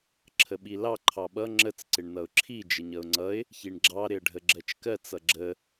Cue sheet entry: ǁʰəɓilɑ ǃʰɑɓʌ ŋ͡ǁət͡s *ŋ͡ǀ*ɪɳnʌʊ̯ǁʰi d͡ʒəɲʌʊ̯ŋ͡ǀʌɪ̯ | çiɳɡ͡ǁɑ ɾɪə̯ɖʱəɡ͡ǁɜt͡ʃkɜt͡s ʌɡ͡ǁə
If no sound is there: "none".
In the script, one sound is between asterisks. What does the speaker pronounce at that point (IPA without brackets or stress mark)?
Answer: ǀ